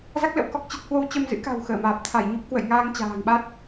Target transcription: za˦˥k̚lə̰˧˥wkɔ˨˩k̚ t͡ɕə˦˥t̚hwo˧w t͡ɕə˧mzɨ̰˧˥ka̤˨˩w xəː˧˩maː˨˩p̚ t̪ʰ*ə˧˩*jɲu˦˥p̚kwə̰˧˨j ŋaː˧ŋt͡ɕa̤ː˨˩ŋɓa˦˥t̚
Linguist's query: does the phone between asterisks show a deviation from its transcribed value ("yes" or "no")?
yes